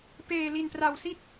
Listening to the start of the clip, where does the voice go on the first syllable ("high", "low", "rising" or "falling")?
low